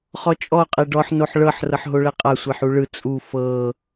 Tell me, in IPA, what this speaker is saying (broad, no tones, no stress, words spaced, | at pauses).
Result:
χɔt͡ʃʼɔ qʼeɖɔħ noħɭɤħ rɤħɦoɭɛqʼa sʷeħuɭɯ t͡sʼu fɤ